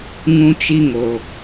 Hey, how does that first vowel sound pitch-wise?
high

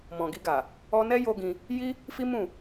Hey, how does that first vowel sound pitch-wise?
low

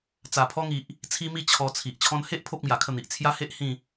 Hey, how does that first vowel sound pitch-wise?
low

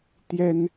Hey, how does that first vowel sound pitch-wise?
high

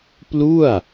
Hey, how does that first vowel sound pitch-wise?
falling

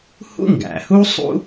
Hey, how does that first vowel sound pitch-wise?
high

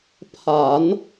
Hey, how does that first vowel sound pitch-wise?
low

